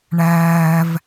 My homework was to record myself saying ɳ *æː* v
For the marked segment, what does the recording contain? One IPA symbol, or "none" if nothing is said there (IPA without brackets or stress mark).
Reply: æː